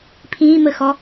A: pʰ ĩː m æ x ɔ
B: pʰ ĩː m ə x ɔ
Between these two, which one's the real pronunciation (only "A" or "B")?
B